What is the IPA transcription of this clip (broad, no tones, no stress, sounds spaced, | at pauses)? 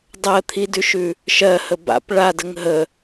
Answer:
dˤ ɜ t̪ʰ i d ʉ ʃ ʉ | ʃ ɜ h ə b a̰ p ɭ a d ə ŋ ɦ ə